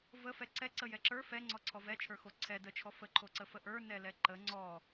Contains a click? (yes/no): yes